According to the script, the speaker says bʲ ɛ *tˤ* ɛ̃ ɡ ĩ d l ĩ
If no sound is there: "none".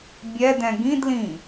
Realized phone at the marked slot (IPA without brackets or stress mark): d